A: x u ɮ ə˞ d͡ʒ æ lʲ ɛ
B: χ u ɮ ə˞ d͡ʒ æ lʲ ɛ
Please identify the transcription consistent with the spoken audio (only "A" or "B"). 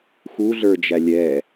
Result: A